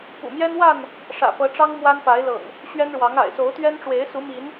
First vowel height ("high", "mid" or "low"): high